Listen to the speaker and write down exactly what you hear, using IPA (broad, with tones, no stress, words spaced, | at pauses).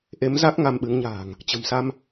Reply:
ʔe˨˦mza˦˥k̚ ŋa˧mɓɨ˨˦ŋɲa̤ː˨˩ŋ | t͡ɕə̤˨˩msa˧m